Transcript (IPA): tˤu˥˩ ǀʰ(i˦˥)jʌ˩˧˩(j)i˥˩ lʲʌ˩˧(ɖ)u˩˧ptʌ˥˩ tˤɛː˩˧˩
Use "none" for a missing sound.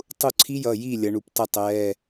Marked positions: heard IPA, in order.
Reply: i˦˥, j, ɳ

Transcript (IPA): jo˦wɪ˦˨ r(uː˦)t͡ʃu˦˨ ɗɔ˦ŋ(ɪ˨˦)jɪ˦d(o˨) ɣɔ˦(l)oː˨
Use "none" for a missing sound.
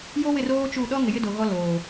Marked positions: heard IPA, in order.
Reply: oː˦, ɪ˨, o˨, l

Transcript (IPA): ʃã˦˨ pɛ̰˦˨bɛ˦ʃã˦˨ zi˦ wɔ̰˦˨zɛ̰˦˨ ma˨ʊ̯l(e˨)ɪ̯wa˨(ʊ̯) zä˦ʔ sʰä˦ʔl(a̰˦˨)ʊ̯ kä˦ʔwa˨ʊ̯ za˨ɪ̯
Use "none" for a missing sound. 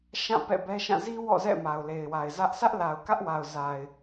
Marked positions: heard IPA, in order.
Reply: e˨, ɪ̯, a˨

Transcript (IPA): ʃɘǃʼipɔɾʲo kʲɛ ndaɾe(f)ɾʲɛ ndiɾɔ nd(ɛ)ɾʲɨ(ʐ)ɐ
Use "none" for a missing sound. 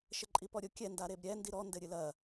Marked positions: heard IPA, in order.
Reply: b, ɘ, l

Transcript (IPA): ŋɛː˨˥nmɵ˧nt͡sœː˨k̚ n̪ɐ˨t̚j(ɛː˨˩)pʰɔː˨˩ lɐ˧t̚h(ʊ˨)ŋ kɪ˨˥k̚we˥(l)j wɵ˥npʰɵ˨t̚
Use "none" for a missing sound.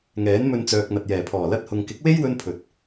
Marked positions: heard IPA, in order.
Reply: ɛː˨˩, ʊ˨, none

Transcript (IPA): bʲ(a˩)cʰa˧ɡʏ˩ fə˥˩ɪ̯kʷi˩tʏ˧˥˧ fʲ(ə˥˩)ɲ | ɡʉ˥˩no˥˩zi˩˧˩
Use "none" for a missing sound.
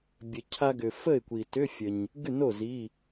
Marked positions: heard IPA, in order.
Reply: ə˩, ə˩

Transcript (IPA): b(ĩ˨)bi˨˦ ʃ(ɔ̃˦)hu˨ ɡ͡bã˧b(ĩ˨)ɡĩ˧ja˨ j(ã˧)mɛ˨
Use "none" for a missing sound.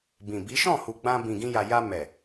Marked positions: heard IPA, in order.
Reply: ĩ˨, ɔ̃˦˨, ĩ˨, a˧

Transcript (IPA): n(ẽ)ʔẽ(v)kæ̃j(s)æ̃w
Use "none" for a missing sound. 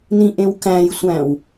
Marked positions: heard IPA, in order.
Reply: ĩ, w, sʷ

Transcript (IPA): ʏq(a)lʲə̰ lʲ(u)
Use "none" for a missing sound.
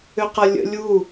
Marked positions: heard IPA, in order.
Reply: ɐ, u

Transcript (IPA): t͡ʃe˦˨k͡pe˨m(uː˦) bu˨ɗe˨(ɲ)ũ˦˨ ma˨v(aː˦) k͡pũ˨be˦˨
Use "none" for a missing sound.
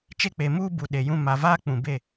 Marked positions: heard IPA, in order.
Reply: uː˦, j, aː˦

